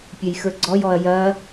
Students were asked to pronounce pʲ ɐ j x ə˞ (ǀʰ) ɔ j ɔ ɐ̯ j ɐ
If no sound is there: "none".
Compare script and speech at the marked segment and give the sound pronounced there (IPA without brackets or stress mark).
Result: ɡ͡ǀ